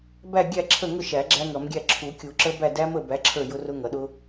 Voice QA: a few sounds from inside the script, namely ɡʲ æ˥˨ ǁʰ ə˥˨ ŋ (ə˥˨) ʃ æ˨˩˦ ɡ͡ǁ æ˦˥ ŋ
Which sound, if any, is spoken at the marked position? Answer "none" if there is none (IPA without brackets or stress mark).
ʊ˥˨